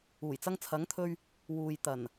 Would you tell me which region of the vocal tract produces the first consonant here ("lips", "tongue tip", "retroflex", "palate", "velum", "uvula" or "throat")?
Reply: palate